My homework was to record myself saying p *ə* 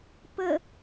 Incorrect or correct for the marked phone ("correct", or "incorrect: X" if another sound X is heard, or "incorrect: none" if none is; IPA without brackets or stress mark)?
correct